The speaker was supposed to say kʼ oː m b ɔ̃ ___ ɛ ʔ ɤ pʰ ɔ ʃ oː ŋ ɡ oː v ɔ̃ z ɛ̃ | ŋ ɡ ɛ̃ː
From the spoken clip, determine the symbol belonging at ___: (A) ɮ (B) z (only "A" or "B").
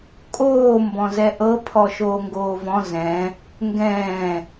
B